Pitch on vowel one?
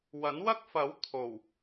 rising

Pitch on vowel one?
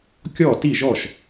falling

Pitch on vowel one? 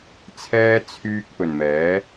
high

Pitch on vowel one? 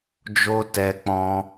high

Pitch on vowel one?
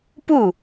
falling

